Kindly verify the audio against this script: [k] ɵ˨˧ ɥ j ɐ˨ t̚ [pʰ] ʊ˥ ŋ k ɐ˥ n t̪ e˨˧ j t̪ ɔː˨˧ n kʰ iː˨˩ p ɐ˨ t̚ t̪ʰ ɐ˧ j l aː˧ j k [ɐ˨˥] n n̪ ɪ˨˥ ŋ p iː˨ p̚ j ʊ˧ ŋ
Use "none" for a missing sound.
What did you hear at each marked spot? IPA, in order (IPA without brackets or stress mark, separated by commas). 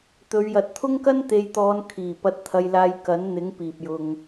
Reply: t̪, t̪ʰ, ɐ˨˥